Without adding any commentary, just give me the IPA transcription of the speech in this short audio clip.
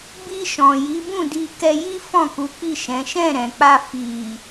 b i˧ ʃ ɔ̃˨ j i˨˦ b ũ˦˨ d i˧ k ɛ˧ j i˦ f ɔ̃˦˨ k u˨˦ k͡p i˦˨ ʃ ɛ̃˨˦ ʃ ɛ̃˦˨ ɾ ɛ̃˨ k͡p a˧ f i˨

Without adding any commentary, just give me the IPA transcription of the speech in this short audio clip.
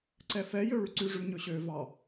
ǀ ɛ f ɛ j ø ɭ y ǀ ʉ ʐ ʉ ɲ ɵ ɕ ø v ɑ

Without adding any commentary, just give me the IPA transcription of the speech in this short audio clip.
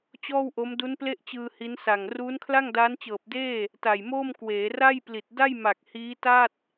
t͡ɕ ɔː˥˩ w ʔ o˦˥ m d u˦˥ n p l e˥˩ ʔ t͡ɕ ɯː˧ h i˦˥ n s a˨˩ ŋ r uː˦˥ n kʰ l a˥˩ ŋ d aː˦˥ n t͡ɕ ɤː˨˩ p̚ d eː˥˩ | t a˨˩ j m oː˥˩ m k w eː˩˦ r a˥˩ j p l i˨˩ t̚ d a˥˩ j m a˨˩ k̚ h iː˦˥ t a˥˩ t̚

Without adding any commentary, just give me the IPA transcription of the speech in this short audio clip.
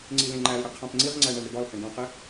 ŋ͡ǀ i l ẽ ŋ͡ǃ æ l ɽ i qʰ æ̃ p ŋ͡ǀ i ʁ ŋ͡ǀ æ ɳ æ ɳ ɾ i ɖ ɒ l h æ̃ ɖ æ̃ q e

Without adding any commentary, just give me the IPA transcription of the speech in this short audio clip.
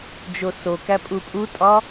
d͡ʒ o s o k æ pʼ u pʼ u tʼ ɒ

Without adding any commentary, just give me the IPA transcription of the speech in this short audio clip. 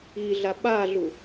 i ɮ a ɓ a ɮ u

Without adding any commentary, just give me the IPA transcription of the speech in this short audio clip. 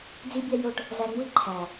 d͡z i˦ bʲ æ˦ j o˦ ʈ | z æ˧ ŋ͡m u˦ i̯ ǃʰ æ˨

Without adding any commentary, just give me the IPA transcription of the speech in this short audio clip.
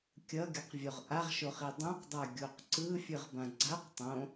kʲ ʌ ɡʲ ʌ q vʲ o ʁ ʔ a ʁ ʃ o χ i dˤ ũ q dˤ a ɡʲ o q ǀ ɯ fʲ ɯ ʁ b ã ɡ͡ǀ a q tˤ õ

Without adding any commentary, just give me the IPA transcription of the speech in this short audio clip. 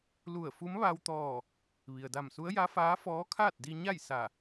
l u˧˩ ə̯ f u˧˥ m ʋ a˧ w t̪ ɔː˧˩ | ʋ i˩ ə̯ d a˧˩ m s u˧˥ ə̯ j a˧˥ f aː˧˥ f ɔː˧˥ kʰ aː˥˨ t̚ d i˧ ɲ a˥˨ j s a˧˩

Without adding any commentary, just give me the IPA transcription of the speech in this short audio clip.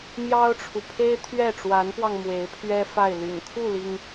m j ɑ˥ ʊ̯ ʈ͡ʂʰ u˨ pʰ e˥ ɪ̯ t̪ʰ ɥ ɛ˥˩ ʈ͡ʂ w a˧˥ n p w ɑ˧ ŋ m w e˧˥ ɪ̯ pʰ ɥ ɛ˥ f a˥˩ ɪ̯ l y̰˨˩ n kʰ u˥˩ l i˩ ŋ

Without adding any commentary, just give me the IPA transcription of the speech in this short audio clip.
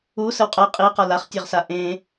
u s ə w qʼ ɜ qʼ i q ɒ l a χ tʲ ɜ ʁ s a ʔ ẽ

